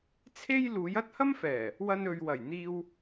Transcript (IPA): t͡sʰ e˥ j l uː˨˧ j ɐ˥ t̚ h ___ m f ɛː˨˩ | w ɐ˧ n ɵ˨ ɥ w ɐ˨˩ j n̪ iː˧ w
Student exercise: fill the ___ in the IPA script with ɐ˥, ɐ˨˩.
ɐ˥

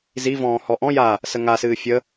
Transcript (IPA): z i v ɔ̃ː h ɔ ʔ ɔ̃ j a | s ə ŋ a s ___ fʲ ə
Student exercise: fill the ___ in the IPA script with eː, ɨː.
ɨː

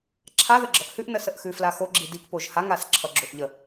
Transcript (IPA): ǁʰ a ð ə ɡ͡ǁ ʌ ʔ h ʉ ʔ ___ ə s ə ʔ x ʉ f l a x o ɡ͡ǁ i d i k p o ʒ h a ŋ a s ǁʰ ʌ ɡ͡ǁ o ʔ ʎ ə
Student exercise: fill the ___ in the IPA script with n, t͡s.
n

